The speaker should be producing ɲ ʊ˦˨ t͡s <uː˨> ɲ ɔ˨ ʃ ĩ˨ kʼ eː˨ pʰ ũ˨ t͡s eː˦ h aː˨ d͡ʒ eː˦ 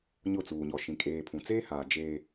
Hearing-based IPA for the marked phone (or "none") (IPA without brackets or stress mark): uː˨